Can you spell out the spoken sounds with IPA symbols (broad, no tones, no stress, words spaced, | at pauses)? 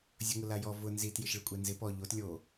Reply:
zʲʊŋʊlajɔ vʊ nzit jɪʃɭɪkʷʼɛnzɪ pɔ ʎot lʲo